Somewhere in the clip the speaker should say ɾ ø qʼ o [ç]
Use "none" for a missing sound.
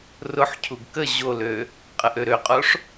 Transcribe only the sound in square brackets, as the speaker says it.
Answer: ʂ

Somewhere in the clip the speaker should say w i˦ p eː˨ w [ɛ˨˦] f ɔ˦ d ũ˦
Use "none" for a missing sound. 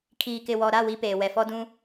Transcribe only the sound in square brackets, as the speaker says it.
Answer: ɛ˨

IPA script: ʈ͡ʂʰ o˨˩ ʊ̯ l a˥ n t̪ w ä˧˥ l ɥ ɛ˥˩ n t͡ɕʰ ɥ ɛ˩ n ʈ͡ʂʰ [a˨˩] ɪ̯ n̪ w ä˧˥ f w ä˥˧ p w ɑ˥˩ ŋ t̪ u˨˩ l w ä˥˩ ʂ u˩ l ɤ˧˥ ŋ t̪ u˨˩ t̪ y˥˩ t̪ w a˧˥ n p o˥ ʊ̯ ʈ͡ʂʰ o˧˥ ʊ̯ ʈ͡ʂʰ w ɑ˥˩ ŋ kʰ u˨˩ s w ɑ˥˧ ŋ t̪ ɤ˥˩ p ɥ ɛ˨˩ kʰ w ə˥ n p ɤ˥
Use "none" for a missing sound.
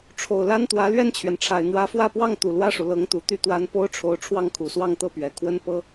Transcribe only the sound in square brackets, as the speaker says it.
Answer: a˨˩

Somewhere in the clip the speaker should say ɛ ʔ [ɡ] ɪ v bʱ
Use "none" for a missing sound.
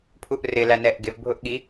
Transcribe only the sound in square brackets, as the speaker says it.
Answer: ɡ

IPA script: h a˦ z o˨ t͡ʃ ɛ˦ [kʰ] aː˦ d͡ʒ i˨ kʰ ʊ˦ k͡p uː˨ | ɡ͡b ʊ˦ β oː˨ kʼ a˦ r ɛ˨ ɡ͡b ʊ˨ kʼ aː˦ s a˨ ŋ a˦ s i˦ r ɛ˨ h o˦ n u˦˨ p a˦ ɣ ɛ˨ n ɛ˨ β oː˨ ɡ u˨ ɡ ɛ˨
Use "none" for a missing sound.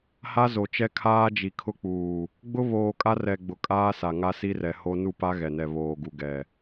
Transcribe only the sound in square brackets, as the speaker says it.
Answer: kʰ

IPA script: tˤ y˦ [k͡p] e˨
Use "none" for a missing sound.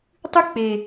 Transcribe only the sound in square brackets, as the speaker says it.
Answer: k͡p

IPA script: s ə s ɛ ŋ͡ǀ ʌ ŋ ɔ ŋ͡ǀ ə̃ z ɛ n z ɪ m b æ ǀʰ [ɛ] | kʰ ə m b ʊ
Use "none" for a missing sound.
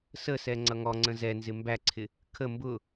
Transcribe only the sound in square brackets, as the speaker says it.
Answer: ɪ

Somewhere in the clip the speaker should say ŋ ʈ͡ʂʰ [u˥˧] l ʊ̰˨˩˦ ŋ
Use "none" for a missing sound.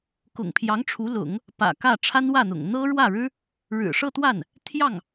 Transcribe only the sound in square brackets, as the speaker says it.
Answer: u˧˥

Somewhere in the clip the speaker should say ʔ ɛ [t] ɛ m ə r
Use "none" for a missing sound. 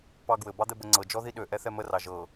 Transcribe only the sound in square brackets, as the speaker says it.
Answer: θ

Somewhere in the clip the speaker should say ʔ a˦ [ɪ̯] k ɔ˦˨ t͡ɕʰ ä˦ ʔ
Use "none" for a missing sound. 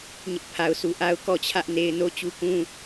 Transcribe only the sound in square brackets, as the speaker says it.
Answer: ʊ̯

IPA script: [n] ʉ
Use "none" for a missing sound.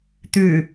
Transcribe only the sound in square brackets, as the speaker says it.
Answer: t̪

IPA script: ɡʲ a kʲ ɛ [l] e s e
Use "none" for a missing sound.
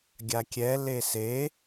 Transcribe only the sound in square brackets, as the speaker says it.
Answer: l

